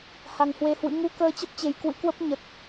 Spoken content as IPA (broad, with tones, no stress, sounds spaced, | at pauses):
h a˨˩ ŋ h w e˧ h w ɨ̰˧˥ ŋ u˧ k əː˧ t͡ɕ ə˦˥ p̚ t͡ɕ e˨˩ j k w ɨ̰˧˥ k w ə˦˥ p̚ ɲ ə˨˩ t̚